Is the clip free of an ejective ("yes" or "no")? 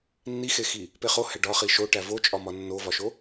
no